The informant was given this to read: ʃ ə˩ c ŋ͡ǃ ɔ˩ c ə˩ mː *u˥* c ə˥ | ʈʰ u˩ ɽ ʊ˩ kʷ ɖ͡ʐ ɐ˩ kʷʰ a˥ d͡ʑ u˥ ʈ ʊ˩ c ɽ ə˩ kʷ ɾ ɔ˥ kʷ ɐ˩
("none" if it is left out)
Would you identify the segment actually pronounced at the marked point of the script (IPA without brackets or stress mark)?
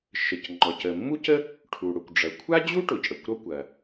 u˥